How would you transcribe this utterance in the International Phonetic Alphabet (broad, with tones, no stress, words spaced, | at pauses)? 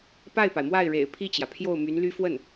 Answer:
pa˥˩ɪ̯pa˩ɪ̯mwa˥˩ɪ̯ɻḛ˨˩ɪ̯ pʰi˥˩t͡ɕjä˩pʰjo˥˩ʊ̯ my˧˥nly˥ fwə˥˩n